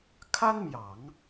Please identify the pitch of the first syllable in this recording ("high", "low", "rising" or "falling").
high